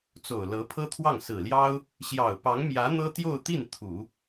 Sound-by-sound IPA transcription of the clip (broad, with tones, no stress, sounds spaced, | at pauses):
t͡s o˨˩ ʊ̯ l ɤ˧˥ pʰ ɤ˥ t̪ʰ w ɑ˥˩ ŋ s ɹ̩˨˩ l j ɑ˥ ʊ̯ | ɕ j ɑ˨˩ ʊ̯ p ɑ˧˥ ŋ m j ä˧˥ n̪ ɤ˥ t̪ j o˥˧ ʊ̯ t̪ i˥˩ n t̪ʰ u˨˩˦